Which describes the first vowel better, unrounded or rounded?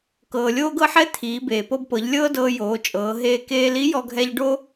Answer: unrounded